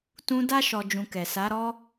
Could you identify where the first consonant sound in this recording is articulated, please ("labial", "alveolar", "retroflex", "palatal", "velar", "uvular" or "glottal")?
alveolar